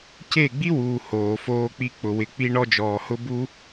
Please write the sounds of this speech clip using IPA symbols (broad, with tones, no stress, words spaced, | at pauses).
ce˦˨ɡ͡bi˦wuː˨ hoː˨foː˧k͡pi˧ k͡pʊ˨wɪ˨ k͡pi˧ɳɔ˧d͡ʒɔː˨hʊ˧ bu˧